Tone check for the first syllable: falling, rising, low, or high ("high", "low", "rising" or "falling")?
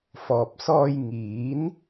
low